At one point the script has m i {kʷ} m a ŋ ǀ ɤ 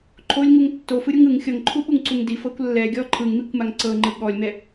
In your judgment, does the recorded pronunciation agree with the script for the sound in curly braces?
yes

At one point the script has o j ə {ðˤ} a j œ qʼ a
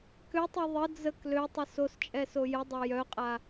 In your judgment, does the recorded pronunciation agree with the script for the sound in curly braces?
no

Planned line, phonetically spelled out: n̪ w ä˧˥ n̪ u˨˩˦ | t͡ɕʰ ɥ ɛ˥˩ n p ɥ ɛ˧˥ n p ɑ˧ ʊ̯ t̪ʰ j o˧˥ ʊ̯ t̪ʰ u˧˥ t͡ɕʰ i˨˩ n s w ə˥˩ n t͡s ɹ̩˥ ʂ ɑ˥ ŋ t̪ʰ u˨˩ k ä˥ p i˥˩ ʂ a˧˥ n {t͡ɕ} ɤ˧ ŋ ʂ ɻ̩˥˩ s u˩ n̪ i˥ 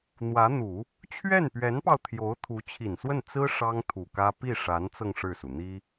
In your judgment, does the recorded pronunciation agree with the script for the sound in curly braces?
no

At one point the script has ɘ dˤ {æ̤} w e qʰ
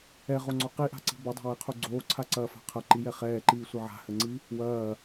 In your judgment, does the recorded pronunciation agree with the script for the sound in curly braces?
no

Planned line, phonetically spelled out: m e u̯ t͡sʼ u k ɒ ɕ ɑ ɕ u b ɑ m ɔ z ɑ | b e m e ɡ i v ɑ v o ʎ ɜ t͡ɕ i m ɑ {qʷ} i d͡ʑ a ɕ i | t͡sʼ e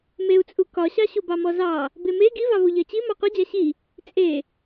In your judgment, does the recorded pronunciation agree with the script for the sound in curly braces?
yes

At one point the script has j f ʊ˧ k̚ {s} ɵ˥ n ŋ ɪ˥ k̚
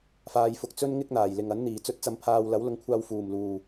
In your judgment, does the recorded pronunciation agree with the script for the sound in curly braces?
no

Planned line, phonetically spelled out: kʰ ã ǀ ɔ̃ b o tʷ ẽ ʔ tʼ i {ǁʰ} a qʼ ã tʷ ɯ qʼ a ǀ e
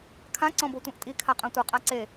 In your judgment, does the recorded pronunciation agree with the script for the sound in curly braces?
no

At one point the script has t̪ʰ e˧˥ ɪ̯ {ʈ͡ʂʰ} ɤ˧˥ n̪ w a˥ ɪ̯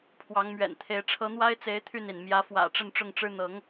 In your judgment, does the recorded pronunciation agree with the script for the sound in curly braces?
yes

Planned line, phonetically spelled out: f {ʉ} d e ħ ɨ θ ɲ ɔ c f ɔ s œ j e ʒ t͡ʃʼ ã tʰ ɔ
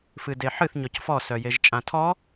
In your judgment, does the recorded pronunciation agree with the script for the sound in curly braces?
no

